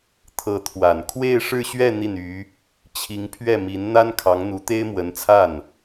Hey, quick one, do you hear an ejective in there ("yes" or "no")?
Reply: no